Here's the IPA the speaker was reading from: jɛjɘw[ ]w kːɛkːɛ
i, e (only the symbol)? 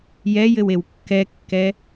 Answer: e